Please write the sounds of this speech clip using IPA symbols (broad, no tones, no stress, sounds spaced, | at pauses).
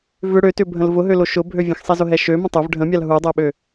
v ʏ ɽ ø t ʏ bʱ ə̃ l v ʊ ɦ ø l o ʃ ʊ bʱ ø vʲ ə̃ x sˤ ɛ z ʊ ɦ ɛ ʃ ø m ə̃ tˤ ʊ v ɖʱ ə̃ mʲ a l ɦ u dˤ ɛ ɓ ø